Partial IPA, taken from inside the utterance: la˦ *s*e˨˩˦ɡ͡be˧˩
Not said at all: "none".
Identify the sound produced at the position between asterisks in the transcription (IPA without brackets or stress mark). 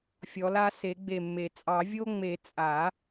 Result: s